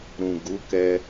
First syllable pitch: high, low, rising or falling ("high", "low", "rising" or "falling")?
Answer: low